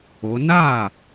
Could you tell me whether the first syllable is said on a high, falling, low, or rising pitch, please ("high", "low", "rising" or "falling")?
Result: rising